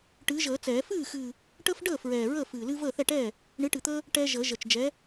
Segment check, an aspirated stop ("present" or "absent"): absent